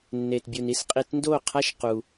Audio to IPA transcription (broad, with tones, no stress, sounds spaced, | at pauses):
nː e˨ t bʲ u˨ n i˦ s qʼ i˧ t n d o˦˨ qʰ a˦ ʃ q u˧